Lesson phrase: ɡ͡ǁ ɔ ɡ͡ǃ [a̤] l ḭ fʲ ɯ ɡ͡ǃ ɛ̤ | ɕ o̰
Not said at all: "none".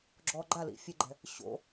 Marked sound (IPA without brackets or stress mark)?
a